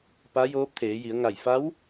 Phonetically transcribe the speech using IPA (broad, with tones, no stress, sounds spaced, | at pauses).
p a˧˥ j oː˧˥ p̚ t̪ʰ eː˩˧ j i˩˧ ə̯ ŋ a˧˩ j f a˧˥ w